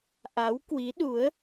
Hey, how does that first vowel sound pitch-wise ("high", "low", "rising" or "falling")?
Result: rising